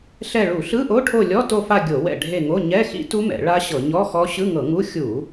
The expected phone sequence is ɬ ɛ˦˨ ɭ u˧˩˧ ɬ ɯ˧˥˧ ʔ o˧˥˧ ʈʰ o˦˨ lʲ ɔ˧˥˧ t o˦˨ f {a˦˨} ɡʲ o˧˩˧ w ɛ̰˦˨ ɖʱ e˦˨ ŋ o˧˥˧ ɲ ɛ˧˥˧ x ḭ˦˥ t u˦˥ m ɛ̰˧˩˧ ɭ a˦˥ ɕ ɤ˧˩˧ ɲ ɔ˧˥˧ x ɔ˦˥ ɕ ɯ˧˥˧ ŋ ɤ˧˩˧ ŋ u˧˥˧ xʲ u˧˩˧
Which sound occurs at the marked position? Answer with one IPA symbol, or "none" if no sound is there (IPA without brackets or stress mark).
a˦˨